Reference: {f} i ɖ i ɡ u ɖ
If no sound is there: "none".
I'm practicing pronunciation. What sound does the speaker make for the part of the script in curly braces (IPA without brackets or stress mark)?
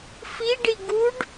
f